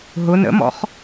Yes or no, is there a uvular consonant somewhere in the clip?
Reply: yes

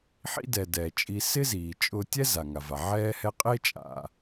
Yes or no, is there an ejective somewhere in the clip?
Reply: yes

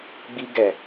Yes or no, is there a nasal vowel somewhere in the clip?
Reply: no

